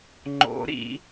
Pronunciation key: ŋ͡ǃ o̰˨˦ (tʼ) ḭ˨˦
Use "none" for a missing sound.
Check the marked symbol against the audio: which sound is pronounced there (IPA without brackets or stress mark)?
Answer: ɾ